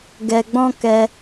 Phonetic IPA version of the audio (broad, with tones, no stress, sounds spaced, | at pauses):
ɡ ɛ˧ ɡ͡b ɔ̃˦ k ɛ˧